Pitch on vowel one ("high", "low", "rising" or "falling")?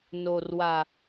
low